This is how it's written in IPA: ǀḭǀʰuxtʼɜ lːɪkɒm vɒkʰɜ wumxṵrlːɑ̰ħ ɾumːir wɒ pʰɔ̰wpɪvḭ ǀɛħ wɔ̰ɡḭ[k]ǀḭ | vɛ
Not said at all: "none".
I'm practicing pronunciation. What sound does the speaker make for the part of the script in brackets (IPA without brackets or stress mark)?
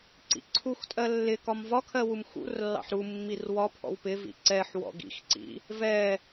x